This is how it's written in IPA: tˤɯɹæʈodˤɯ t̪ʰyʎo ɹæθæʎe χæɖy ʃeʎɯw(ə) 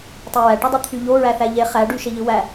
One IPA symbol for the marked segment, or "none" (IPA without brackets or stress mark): æ